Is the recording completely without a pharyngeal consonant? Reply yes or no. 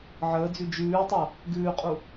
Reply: no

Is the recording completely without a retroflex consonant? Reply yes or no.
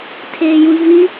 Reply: yes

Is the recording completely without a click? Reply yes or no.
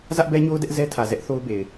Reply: yes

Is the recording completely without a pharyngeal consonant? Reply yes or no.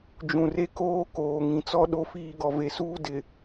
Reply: yes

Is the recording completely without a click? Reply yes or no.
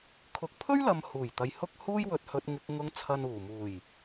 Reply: yes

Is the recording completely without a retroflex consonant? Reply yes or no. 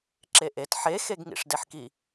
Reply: no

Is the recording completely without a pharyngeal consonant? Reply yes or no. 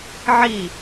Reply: no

